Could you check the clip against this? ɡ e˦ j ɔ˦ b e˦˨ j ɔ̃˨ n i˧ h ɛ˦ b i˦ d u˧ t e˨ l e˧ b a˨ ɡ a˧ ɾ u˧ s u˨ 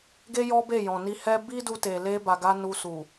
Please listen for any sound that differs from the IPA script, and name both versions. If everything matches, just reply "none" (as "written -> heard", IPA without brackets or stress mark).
ɾ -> n